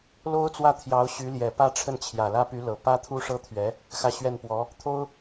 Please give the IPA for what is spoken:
l o˥ ʊ̯ t͡s w ä˥˩ t̪ʰ j ɑ˧˥ ʊ̯ ɕ y˧˥ l j ɛ˨˩ p ä˥ ʈ͡ʂʰ ə˥˩ n t͡ɕʰ j ä˨˩ l ä˥ p y˧˥ l ɤ˨˩ p ä˥ t̪ʰ u˥ ʂ ɤ˥ t̪ʰ ɥ ɛ˧˥ | x ä˥˧ ɕ ɥ ɛ˥˩ n p w ɔ˧˥ | t̪ʰ o˥ ʊ̯

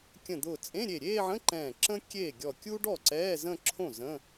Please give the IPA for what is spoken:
kʲ ə̃˧˩ d̪ ʊː˧˩ t͡sʼ ẽ˧˥˧ ɾʲ e˧˩ ɾʲ eː˥˧ ʕ ə̃˧˥˧ ǃ ɛ̃ː˧˩ ǁ ə̃˥ kʲ eː˥˩ ɡʲ ɔ˧˩ kʲ u˥ ɖ ɔ˥˩ ǀ ɛː˧˥˧ z ə̃˥˧ ǁʰ õ˥˩ z ə̃˧˥˧

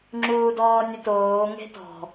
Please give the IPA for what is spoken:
ŋ͡ǁ uː d ɔː nʲ ʊ t oː ŋ e̤ t ɔ̤

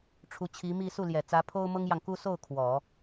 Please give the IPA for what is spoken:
ʈ͡ʂʰ u˧˥ t͡ɕʰ i˧˥ m i˥˧ s u˥˩ l j ɛ˨˩ t͡s ä˧˥ pʰ o˥ ʊ̯ m ɤ˥ ŋ j ɑ˨ ŋ k u˥ s o˥˩ ʊ̯ kʰ w ɔ˨˩˦

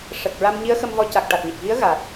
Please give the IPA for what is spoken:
ʂ ə˨˩ k̚ ɹ a˧ m ɲ i˧˥ ə̯ x ə˧ m v ɔ˧ c a˨˩ k̚ ʈ a˨˩ t̚ ɲ ə˨˩ k̚ ɣ i˧˥ ə̯ ɣ a˨˩ t̚

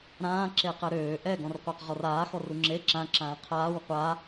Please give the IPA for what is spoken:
ɾ ãː ǁ e q ɛ ɾ øː ʔ ɛ ɡ ɔ̃ r qʷ a q ʁ ɔ r aː x ɔ r u ŋ͡ǁ e ǁ ã ǁ ãː qʰ aː w qʷ a

